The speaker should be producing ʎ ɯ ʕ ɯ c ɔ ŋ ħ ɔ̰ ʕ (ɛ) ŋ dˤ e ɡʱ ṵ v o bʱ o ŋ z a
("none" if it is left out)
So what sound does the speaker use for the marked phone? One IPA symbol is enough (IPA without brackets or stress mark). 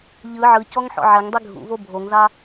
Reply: ɛ